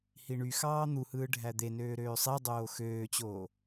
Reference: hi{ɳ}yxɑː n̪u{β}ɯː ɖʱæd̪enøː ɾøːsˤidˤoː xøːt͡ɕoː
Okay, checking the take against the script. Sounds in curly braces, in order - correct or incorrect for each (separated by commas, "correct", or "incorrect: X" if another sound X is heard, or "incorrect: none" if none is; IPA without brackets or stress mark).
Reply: correct, incorrect: h